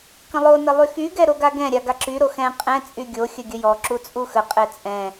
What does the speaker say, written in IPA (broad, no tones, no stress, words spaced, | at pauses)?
kə̃lˠonə lˠyxyɡɛ ɾoɡaɡɛ̃ɾʲa ɡaǁyɾo xɛ̃ qʼɛ̃ t͡sʼyɡʲoxʲə ɡʲəjɔǁu t͡sʼuxəqʼɛ t͡sʼɛ̃